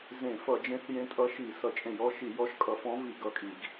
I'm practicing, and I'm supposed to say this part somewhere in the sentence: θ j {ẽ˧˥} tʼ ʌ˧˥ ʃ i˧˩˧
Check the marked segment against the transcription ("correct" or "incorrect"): correct